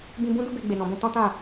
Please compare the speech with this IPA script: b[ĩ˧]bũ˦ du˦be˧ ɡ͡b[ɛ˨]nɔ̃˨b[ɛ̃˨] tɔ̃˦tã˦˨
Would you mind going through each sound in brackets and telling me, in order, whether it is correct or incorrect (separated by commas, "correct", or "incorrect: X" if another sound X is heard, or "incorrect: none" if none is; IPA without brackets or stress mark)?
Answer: correct, incorrect: e˨, incorrect: ɛ̃˧